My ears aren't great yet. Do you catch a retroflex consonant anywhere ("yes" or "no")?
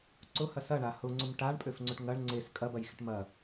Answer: yes